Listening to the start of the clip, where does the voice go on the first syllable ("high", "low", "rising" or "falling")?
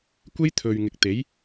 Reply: high